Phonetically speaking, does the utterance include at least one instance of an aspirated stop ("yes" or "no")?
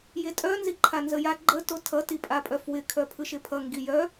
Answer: yes